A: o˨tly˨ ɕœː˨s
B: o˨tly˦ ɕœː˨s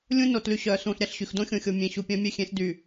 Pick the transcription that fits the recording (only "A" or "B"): A